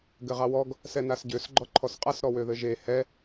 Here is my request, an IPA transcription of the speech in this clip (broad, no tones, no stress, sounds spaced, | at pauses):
ɡ ɘ ʁ ɑ w ɔ ɡ | s ɛ n a s ɟ ø s ɡ͡ǃ ɔ ǃʰ ɔ s qʼ a s ɾ ɔ w ø ð ɘ ʒ e h ɛ